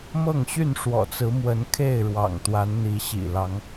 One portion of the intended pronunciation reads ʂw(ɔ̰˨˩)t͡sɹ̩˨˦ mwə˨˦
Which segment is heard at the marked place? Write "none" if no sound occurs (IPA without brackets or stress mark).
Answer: ɔ̰˨˩